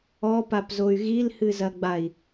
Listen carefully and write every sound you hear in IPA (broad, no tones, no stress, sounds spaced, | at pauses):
ɔ p a p z o y̯ ɣ i l h ɨ z ɐ ɡ͡b a i̯